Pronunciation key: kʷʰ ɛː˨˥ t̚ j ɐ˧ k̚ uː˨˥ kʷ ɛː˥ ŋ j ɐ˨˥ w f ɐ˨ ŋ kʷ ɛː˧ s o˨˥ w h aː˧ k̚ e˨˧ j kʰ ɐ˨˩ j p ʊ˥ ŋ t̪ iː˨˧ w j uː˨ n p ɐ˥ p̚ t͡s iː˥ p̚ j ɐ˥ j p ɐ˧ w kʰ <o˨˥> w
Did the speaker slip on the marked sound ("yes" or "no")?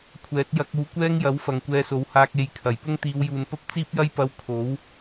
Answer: no